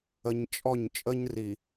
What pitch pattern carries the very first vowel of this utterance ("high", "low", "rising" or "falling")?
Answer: low